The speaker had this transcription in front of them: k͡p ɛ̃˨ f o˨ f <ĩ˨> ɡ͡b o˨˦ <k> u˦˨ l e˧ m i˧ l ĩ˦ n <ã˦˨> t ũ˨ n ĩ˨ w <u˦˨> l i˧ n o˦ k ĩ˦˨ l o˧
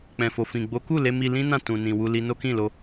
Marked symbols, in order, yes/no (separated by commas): yes, yes, yes, no